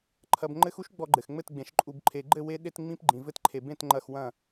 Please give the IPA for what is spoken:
ǃʰɐ˧bŋ͡ǃɘ˦x u˦ʃ ɡ͡bɔ˧ɡ͡ǃɘ˨xŋ͡mɘ˦˨tɡ͡bẽ˨˦ʃ ǃʼu˨bǃʰe˨ɡ͡ǃɘ˦˨ we˦ ɗe˦tŋ͡mĩ˦p ɡ͡ǃĩ˨vɘ˧tǃʰe˨bẽ˦˨t ŋ͡ǃɐ˦˨xwɐ̃˦˨

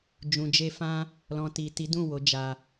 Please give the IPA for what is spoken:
d͡ʒũ˨d͡ʒe˧fã˦ | lɔ̃˨ti˨ ti˨˦dũ˦˨ wo˨˦d͡ʒa˧

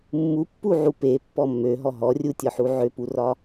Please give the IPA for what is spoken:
mːupːuʕu pepːɔ mːøɦɔ ɦɔrʲutʲɒħu ʕøpurɒ

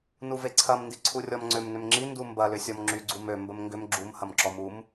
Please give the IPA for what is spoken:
nuveǀʰɐm ndiǀʰurʲɔmŋ͡ǀʏm nʏmŋ͡ǁi ndumbɐ lʏsʲɔmŋ͡ǁy ɡ͡ǀumø mbəmŋɡʏm ɡ͡ǁum hɐmǁɔmum

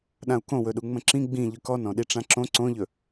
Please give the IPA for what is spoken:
ɗãu̯kõwɵɗu ŋ͡mə̃ǁĩ ɡ͡bĩ ʎʏkɔn ɔ̃ɗiʈ͡ʂãǁõ ǀõʎɵ

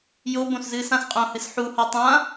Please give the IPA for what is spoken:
jobõszɨːs ãsqʼõ hɨsħuhɔ tˤã

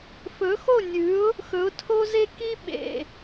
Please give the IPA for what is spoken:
fɵ˩˥xo˥˩nʲʉ˩˥ʊ̯ | xɵ˩˥ʊ̯tʰo˥ ze˥ ki˥ ɓḛ˩

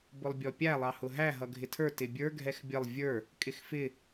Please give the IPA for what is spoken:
bʊlˠbʲɔpʲæ lˠɑhʊɦæ ɦʌɡʱɪtʰə˞ tɪbʲə˞ ɡʱɛxbʲəlˠ vʲə˞ | kʼɪxfɪ

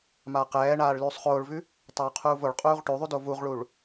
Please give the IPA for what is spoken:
maːqɛːɳaːɭ lʉːsˤχoːɭvʉ | tˤoːqʰuːvoɭqʼuːʁ ʈʉðˤʉ dovuʁɭuɭ

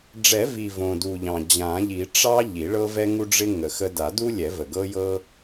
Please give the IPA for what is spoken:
ɖ͡ʐɛ˨˩˦vi˨˩ võ˨˩du˨˩ʎɑ̃˨˩ d͡ʑã˨˩˦ʎi˨˩˦ ʈ͡ʂɑ˦ ʎi˨˩˦ɭɤ˦ vɛ˦ŋu˦ɖ͡ʐɪ˦ ŋə˨˩˦xə˦ da˨˩˦du˦lʲɛ˨˩˦və˨˩ ɡɤ˦jɤ˦

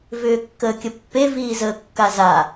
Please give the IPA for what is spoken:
vʏːkːəːkʲəpːe viːzəːkːaza

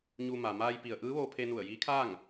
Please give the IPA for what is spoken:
ɲu˧ ma˩ maː˧jpi˩ə̯ ʔɯː˧˥ʋoː˧pʰe˧ nu˧˩ə̯jiː˧˥kʰaː˥˨ŋ

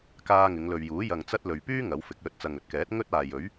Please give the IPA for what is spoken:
kaː˧ŋɪ˨˧ŋlɵ˨ɥjuː˨˥ jɐ˨ŋt͡sɐ˧t̚ lɵ˨ɥpyː˥ ŋɐ˨˥wfɪ˨˥k̚lɵ˧t̚ t͡sɐ˨ŋɵ˨t̚kɛː˨˥t̚ ŋɵ˥t̚aː˨jɵ˨˥ɥ

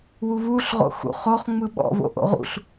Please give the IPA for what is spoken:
wuβuɬʁo̰ xṵχoχ ŋ͡mɯɓɔ̰βo̰ ʔo̰ʁṵɬ

